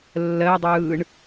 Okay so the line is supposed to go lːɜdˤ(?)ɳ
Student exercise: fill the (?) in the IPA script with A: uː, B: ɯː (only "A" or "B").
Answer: B